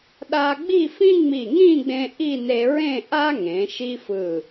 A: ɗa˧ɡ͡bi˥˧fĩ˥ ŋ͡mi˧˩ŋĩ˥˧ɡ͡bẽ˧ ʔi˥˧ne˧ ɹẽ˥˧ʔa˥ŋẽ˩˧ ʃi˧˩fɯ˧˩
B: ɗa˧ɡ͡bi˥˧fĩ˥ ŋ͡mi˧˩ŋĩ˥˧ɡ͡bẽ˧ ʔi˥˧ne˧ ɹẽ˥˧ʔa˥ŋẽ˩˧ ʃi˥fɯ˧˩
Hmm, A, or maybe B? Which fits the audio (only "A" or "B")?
B